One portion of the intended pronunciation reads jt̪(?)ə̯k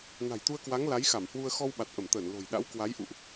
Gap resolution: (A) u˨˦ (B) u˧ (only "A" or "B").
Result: B